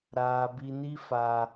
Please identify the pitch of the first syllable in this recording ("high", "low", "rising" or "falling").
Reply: high